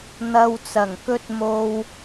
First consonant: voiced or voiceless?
voiced